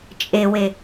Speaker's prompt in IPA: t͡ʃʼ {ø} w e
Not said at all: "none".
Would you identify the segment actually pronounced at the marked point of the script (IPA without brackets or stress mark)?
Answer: e